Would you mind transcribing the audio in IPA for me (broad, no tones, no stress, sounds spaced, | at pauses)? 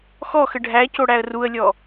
x ɔ x ə ɖʱ æ c o ɽ æ ə̯ r u ə̯ lʲ ɔ